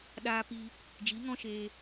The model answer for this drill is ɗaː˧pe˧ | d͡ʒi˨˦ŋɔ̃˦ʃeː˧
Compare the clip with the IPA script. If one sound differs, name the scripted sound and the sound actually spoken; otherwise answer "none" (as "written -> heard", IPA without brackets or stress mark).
e˧ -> i˧